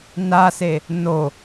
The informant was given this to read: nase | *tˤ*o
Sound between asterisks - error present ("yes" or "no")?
yes